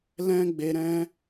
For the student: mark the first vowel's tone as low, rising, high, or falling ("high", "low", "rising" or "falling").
high